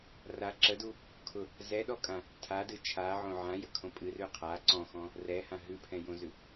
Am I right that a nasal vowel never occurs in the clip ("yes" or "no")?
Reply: no